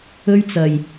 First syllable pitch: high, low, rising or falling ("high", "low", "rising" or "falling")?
high